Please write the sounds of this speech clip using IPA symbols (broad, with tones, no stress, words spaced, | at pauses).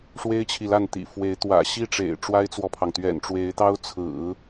ʂwe˥ɪ̯t͡ɕʰi˨la˥˩n t̪ḭ˨˩fwe˧˥ɪ̯ t̪wä̰˨˩ɕi˥˩ʈ͡ʂḛ˨˩ɪ̯ ʈ͡ʂwa˥ɪ̯t͡swɔ˨pʰɑ˩ŋ t̪ɥɛ̰˨˩nʈ͡ʂwe˧˥ɪ̯t̪ɑ˥ʊ̯ t͡sʰɹ̩˨˩˦